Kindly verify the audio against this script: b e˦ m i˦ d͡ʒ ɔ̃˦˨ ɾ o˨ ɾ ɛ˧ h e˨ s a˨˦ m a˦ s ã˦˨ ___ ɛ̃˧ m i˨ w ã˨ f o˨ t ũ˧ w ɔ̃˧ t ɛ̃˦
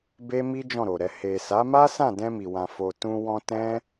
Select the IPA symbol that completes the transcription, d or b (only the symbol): d